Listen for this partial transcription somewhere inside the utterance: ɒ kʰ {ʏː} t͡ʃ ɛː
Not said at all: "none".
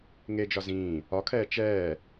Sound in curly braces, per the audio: ɛː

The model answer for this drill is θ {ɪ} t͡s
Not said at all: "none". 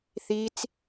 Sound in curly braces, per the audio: i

